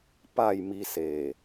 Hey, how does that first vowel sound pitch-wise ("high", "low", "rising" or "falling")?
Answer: falling